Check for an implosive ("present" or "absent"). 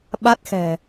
present